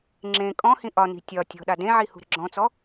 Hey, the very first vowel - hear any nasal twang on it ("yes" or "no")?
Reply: yes